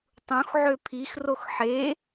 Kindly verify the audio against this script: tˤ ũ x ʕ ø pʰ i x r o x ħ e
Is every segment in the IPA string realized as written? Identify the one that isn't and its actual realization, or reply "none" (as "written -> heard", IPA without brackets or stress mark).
none